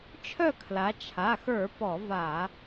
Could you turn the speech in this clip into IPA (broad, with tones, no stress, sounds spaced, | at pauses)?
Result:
t͡ʃʰ œ˥˨ kʰ l a˨˦ t͡ʃʰ a˩˧˩ x ə˞˧˩˧ p ɔ˧˩˧ v a˧˩˧